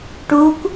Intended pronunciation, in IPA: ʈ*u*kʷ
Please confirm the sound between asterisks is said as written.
yes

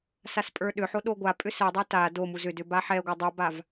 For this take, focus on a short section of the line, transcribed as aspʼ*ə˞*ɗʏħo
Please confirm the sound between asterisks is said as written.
yes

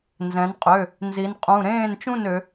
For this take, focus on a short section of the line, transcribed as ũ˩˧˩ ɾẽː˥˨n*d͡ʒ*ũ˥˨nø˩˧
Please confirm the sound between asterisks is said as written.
no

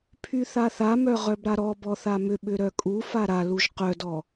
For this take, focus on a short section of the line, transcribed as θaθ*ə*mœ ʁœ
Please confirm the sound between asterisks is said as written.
no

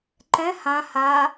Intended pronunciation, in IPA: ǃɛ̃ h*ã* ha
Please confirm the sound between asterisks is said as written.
yes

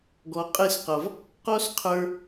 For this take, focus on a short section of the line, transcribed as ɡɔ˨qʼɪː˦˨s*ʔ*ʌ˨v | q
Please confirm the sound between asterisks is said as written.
no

